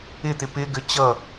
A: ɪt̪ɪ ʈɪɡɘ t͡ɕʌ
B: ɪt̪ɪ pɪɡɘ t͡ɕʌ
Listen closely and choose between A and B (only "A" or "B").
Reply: B